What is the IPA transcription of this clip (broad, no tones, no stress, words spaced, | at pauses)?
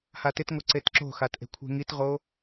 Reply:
hatɪtŋo ǀetǁo̤xatʔe̤ kʷʰe̤ŋitʁo